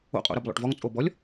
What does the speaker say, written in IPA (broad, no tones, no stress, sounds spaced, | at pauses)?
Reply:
o̰ qʼ o̰ ɾ ə b lˠ o̰ ʈ v ɔ ŋ t͡sʼ o b ɔ lʲ